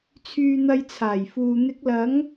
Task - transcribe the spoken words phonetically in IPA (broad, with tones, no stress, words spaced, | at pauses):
t͡sʰyː˧n̪ɐ˧jt͡sʰaː˨˩jfuː˨ n̪ɪ˨˥k̚lɐ˨˥ŋ